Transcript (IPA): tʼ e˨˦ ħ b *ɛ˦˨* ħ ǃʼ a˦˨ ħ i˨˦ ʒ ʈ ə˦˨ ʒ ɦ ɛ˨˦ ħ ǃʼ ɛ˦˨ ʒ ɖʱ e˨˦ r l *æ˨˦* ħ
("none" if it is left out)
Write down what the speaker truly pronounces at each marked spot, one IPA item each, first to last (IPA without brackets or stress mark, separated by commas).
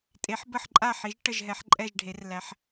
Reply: ə˦˨, æ˨˦